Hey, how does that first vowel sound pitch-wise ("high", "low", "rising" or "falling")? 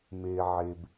low